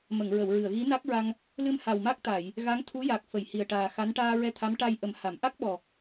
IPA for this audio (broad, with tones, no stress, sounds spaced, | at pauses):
m ə˨˩˨ ŋ ɹ ə˨˩˨ w ɹ ɨ˨˩˨ ə̯ ɣ i˧˥ n a˦˥ k̚ ɹ a˧ ŋ | l ɨ˧ m h a˨˩ w m a˦˥ k̚ t̪ a˨˩˨ j | ɣ a˧˥ ŋ t̪ʰ u˧˥ j a˨˩ k̚ f ə˨˩˨ j h i˨˩ ə̯ ʈ aː˨˩ x a˧˥ n ʈ aː˧ ɹ ɛ˧ t̪ʰ a˧˥ m ʈ a˧ j ʔ ə˨˩˦ m h a˨˩˨ m ʔ a˦˥ k̚ ɓ ɔ˨˩